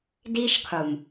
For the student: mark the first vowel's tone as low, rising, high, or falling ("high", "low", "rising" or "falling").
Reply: high